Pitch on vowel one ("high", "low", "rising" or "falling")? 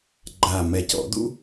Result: low